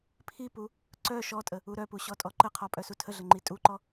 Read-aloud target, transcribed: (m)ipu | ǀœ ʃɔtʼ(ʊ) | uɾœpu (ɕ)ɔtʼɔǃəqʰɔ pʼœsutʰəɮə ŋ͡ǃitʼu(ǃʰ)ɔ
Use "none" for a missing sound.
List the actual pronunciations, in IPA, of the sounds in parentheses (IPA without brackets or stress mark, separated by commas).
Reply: pʰ, ə, ɕ, ǃ